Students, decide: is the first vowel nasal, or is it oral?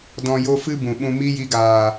nasal